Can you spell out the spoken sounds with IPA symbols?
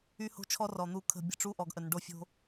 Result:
y˦ h o̤˦ t͡ʃʰ ɔ˦ r ɔ˨ n̪ u˦˨ kʰ ə̤˦˨ bʲ ə̤˦˨ ʈ͡ʂ u˦ ʔ ɔ˨ ɡ ʔ ə˨ n ɖ o˦ fʲ o̤˦

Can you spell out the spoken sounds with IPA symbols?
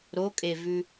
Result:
ɾ o kʼ e v ʉ

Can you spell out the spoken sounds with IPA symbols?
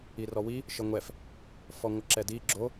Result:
i r ɔ w i | ʃ ə ŋʷ ɛ f | f ɔ ŋʷ ə ǁ ɛ d i ɡ͡ǁ o

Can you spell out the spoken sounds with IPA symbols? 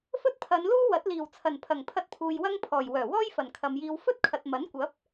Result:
f ɵ˥ t̚ pʰ ɐ˨˧ n l uː˥ w ɐ˨˥ t̚ l iː˨˩ w t͡sʰ ɐ˨˩ n pʰ ɐ˨˩ ŋ pʰ ɐ˧ t̚ pʰ uː˨ j w ɐ˥ ŋ pʰ ɔː˨˩ j w œː˨˩ w ɔː˥ j f ɐ˨˩ n kʰ ɐ˨ m j iː˧ w f ɵ˥ t̚ kʰ ɐ˨ t̚ m ɐ˨˥ n kʷ ɐ˨˥ p̚

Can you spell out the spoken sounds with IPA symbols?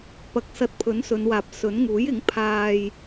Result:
p ɐ˨ k̚ s ɐ˧ t̚ pʰ ɵ˨˥ n s ɵ˨˧ n w aː˨ p̚ s ɵ˨˥ n ŋ uː˨˥ j ɪ˨˥ ŋ pʰ aː˧ j

